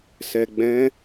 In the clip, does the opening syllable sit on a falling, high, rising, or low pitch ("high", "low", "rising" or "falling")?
low